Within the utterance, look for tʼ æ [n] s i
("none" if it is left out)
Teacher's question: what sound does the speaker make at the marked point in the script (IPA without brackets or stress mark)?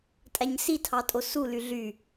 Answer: ɲ